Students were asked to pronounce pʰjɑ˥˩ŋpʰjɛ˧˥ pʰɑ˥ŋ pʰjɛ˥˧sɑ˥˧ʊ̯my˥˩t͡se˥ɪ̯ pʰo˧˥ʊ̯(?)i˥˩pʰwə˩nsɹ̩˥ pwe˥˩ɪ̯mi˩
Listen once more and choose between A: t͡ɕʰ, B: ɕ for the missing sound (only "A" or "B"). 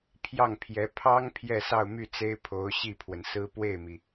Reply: B